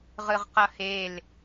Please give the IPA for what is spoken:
ʁɯʁqʌhel

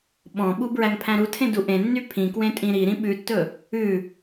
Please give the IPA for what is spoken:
ɓɔ̃ɓu bɹæŋpʰæ̃ɾutʰẽ duʔẽnːy pʰĩkwẽ tʼĩɾiɾĩ ɓʉtːɵ | ʉ

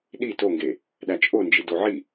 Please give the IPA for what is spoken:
ɗi toŋɡe | ɗæt͡ʃʼond͡ʒi doʕi

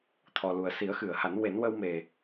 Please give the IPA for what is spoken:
t̪ʰɔ˨˩lu˨˩ə̯ si˨˩˦ə̯xɨ˨˩˨ə̯ha˨˩˦n we˨˩˦nwə˧wme˨˩

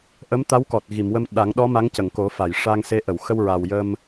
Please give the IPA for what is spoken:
ʔə˧˥mt̪a˧˥wkɔ˨˩t̚ɣi˨˩˨m wə˧m ɗa˨˩˦ŋɗɔ˧˥ ma˧˥ŋcə˨˩˨ŋko˨˩˦fa˨˩˨j ʂa˧ŋse˧˥ ʔə˨˩˨wxə˧w ɹa˨˩wjə˧m

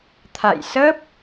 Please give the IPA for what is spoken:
t̪ʰa̰˧˨jsə˦˥p̚

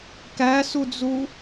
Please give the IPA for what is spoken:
kæsud͡zu

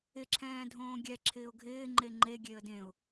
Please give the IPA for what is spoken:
ɪ ǁʰɛ̃ːdʱõːɡʲɛ ǁʰɪːʊ̯ɡʱɪː ŋ͡ǃeŋ͡ǃe ɡʲeə̯dẽʊ̯

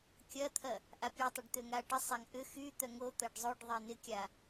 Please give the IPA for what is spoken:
kʲɐt̪ʰɐ | ʔapʲutˤʏɖ t̪øŋaʈɪsˤaŋ ʔʏ xyt̪œ ŋo t̪ɐɖzˤoɖðˤe nɪkʲa

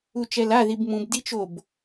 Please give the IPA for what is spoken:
ut͡ʃɛlaðib mũb dit͡ʃob

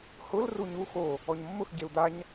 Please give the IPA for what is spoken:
hʊl ruɲu xo | ɔɲmːʊx ɟeu̯d̪aɲ

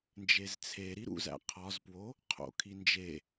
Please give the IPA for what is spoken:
nd͡ʒezt͡sʰeɾi ɾṵzæ̰ qʰɒzpwo | qʰo̰kʰind͡ʒe

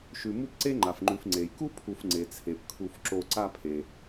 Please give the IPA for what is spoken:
ʃʉ˨mu˥pǀe˥ ŋ͡ǃa˩fŋ͡ǃʉ˨f ŋ͡ǀe˩jku˥pʰu˨f ŋ͡ǀe˩t͡sʰe˩pkʰu˨f ǁo˨ǀa˦pʰe˩

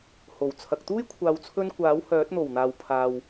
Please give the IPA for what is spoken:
ho˨˩wt͡sʰɐ˨k̚ t̪uː˥jkʷʰaː˨wt͡sʰɵ˧n kʷaː˨˥whœː˨˥t̚n̪o˨˩wn̪aː˨w pʰaː˨w

